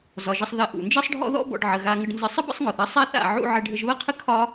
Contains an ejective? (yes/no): no